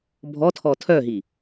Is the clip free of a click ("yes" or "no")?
yes